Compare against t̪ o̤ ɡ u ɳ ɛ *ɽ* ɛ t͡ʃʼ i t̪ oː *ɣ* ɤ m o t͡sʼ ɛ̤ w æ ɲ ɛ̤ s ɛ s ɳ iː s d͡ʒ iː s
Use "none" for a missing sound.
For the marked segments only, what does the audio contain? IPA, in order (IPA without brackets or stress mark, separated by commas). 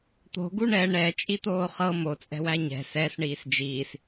ɳ, χ